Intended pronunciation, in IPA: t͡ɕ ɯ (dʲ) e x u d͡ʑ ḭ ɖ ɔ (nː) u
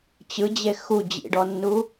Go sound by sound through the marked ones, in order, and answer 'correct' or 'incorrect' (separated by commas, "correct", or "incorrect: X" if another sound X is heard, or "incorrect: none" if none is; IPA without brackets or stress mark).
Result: incorrect: d͡ʑ, correct